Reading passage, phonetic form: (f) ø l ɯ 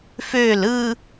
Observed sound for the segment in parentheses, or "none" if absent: f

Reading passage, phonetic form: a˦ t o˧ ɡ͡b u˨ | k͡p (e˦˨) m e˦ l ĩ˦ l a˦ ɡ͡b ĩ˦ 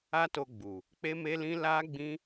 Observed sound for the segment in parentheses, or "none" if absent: e˦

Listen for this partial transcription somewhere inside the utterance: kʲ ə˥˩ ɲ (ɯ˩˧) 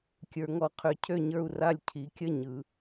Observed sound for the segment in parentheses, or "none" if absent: ɯ˩˧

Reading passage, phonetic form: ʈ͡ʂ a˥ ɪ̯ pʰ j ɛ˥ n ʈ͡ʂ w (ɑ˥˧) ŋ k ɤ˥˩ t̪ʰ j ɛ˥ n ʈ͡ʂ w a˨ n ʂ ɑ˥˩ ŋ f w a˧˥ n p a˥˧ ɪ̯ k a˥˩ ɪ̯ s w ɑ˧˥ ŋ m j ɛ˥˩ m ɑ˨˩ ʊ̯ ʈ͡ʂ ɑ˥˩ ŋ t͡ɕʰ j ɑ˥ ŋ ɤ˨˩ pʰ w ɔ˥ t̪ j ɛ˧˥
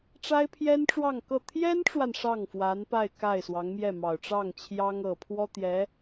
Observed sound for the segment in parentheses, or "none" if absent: ɑ˥˧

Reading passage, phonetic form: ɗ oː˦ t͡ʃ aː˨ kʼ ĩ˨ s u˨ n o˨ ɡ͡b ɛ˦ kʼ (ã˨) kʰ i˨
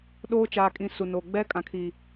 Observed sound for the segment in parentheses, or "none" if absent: ã˨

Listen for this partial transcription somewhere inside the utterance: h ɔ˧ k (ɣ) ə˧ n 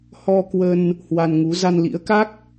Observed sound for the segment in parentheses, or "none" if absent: w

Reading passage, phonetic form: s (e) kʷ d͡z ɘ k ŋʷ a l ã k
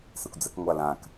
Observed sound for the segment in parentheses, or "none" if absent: e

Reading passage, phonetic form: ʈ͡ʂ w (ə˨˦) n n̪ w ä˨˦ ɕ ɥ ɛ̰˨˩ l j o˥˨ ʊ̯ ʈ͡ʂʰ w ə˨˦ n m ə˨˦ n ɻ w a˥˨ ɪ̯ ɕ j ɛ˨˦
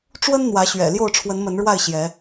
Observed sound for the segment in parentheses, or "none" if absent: ə˦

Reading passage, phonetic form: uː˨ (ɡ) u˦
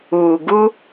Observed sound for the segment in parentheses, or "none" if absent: ɡ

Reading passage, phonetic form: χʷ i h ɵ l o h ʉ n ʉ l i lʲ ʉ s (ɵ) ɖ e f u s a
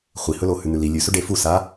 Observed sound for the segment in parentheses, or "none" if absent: ɵ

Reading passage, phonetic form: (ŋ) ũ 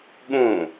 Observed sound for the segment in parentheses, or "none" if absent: ɠ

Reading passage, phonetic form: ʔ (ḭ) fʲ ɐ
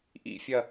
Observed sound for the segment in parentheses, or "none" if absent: ḭ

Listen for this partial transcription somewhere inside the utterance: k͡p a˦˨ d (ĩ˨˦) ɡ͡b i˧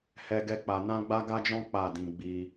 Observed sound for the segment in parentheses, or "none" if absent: ĩ˧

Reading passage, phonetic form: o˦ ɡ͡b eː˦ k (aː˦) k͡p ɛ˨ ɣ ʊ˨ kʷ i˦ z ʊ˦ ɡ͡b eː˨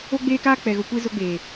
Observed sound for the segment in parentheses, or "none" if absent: aː˦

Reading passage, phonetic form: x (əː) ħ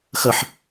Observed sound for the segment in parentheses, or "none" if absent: ə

